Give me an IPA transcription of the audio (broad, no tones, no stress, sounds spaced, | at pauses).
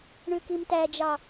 ɳ ʉ k i m t æ d͡ʒ ɑ